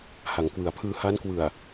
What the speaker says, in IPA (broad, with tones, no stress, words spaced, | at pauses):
ha˩˦ŋkwɯ˩˦a̯ pʰɯː˧ ha˦˥nkwɯ˨˩a̯